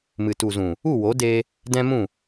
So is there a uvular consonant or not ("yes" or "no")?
no